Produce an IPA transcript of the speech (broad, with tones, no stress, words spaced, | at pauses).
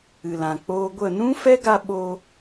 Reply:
ɨ˨lã˨k͡poː˧ɡʷə˦˨ nũ˦fɛ˦ɡa˧ ɓo˧